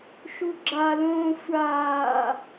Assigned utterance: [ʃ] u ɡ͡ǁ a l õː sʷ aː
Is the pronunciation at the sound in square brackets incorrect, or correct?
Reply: correct